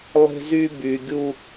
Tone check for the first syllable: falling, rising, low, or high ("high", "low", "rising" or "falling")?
high